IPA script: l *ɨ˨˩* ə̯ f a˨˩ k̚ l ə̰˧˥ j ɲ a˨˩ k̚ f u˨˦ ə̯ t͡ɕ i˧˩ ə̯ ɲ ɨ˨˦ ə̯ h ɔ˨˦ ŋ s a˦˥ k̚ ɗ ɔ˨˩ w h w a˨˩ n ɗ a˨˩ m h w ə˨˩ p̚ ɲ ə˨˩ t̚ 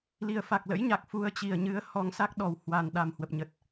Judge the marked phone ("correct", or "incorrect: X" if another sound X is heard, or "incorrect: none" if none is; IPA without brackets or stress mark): incorrect: i˨˩